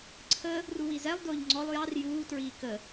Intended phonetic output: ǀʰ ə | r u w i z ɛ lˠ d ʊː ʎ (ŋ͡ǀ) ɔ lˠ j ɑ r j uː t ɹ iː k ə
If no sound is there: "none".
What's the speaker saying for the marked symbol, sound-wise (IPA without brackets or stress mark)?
ŋ͡ǀ